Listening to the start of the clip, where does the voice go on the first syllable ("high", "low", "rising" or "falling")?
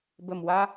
low